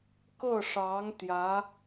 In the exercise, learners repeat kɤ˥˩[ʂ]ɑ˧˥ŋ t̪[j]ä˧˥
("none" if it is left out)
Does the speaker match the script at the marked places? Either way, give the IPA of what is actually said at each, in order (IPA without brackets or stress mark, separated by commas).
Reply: ʂ, j